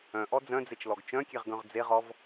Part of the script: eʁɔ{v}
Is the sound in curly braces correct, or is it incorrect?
correct